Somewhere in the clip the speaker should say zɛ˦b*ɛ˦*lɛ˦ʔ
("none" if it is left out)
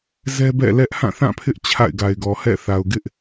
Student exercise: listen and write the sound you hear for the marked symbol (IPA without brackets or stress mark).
ɛ̰˦˨